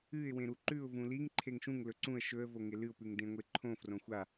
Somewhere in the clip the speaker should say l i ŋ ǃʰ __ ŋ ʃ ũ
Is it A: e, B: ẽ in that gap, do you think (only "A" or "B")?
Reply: A